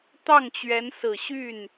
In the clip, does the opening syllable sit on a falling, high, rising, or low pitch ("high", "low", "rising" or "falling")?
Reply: falling